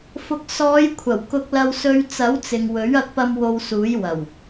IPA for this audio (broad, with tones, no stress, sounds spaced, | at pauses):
f ʊ˨ k̚ s ɔː˨˧ j kʷʰ ɐ˨˩ w k ʊ˧ k̚ l ɐ˧ w s ɵ˧ ɥ t͡s ɐ˨˥ w t͡s ɪ˨ ŋ w ɵ˨˥ ɥ ɐ˧ k̚ p ɐ˧ m w o˧ w s uː˨˥ j w ɐ˨˩ w